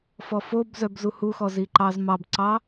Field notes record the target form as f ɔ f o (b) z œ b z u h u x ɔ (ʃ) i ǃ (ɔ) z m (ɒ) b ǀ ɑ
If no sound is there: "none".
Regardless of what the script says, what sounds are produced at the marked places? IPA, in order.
b, z, ɑ, ɑ

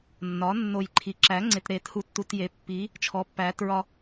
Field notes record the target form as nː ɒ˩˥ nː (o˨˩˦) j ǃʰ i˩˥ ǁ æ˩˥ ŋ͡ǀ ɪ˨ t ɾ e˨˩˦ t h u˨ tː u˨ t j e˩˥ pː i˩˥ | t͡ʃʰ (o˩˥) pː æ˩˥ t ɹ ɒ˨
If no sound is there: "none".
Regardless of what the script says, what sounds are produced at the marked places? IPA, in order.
o˨˩˦, ɔ˩˥

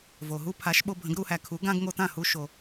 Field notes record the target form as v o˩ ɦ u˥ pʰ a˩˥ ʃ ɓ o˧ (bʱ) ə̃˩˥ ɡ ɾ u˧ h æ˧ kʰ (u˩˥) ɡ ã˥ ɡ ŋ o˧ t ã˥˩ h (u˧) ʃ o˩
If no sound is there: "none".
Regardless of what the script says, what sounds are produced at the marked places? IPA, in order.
bʱ, u˩˥, u˧

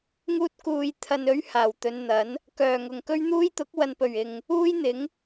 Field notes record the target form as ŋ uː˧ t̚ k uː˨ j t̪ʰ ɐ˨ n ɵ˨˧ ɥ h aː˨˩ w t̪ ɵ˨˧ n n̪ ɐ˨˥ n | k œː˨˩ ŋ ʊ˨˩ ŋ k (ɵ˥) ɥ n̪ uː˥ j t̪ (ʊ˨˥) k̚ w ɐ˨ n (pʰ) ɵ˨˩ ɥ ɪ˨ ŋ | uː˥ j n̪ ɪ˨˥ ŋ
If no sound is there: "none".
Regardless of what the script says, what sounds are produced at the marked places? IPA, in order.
ɵ˥, ʊ˨˥, p

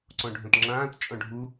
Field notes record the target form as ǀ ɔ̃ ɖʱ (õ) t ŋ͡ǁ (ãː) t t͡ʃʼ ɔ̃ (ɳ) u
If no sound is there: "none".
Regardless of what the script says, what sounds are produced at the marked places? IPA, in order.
õ, ãː, ɖʱ

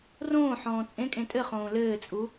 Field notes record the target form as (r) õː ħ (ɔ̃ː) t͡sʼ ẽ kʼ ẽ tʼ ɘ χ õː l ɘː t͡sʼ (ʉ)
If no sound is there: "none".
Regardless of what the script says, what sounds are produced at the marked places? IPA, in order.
r, ɔ̃ː, u

